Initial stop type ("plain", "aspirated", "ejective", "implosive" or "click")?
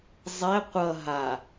plain